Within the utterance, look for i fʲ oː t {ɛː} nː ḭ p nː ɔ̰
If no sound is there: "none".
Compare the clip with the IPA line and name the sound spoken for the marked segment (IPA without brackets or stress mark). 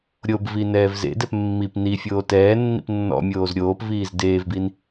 ɛː